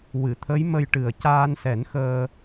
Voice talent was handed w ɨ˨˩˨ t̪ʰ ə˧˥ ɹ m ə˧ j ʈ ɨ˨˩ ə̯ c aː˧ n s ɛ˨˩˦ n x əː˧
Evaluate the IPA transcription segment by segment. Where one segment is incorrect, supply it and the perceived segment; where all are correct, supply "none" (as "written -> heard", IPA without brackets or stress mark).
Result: ɹ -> j